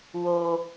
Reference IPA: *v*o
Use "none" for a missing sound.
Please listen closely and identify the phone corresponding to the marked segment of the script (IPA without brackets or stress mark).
w